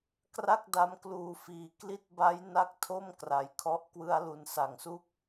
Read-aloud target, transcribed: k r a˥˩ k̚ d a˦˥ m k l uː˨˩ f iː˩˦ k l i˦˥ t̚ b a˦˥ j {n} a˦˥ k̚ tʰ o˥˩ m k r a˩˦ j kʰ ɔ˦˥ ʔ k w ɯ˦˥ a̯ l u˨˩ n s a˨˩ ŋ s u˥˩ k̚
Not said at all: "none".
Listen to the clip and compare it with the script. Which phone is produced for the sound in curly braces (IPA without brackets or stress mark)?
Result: n